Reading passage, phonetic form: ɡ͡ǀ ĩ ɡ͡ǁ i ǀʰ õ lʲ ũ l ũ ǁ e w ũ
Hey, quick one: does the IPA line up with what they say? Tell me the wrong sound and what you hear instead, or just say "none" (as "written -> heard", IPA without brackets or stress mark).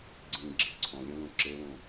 none